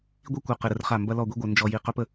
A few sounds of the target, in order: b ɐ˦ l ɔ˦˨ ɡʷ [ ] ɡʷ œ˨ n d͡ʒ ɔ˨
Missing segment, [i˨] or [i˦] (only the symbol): i˦